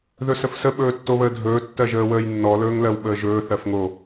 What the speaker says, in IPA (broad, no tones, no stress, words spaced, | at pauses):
ðɵsəfsə ɓɵːtːoβəːdʱɵː tːɜʒəːwəːjnːɔ lɵːŋlɜwɓəːʒɵː θɜfŋo